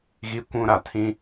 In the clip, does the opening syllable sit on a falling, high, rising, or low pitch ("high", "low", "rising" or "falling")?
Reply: high